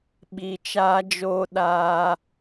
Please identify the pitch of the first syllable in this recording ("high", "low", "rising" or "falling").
low